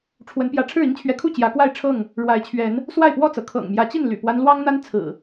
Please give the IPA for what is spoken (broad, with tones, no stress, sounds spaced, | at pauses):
ʈ͡ʂʰ w ə˨˦ n p j ä˨˦ ʈ͡ʂʰ ɻ̩˥˨ i˦ ŋ t͡ɕʰ ɥ ɛ˨˦ kʰ u˥˨ t͡ɕ j ä˨˦ k w a˥˨ ɪ̯ ʈ͡ʂʰ ɤ˥˨ ŋ | ɻ w a˨˦ ɪ̯ t͡ɕʰ ɥ ɛ˨˦ n | s w a˥˨ ɪ̯ p w ɔ˥˨ t͡s ɤ˩ kʰ ɤ̰˨˩ ŋ m j ä˨˦ t͡ɕ i˥˨ n l y̰˨˩ p w a˦ n l w ɑ˦ ŋ n̪ a˦ n t͡sʰ ɹ̩˨˩